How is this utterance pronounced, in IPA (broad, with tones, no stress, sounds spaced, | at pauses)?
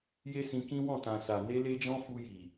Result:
j e˦ s ĩ˧ k ĩ˦ w ɔ̃˦˨ t ã˨ s a˨ n e˧ l e˧ d͡ʒ ɔ̃˧ f u˧ j i˨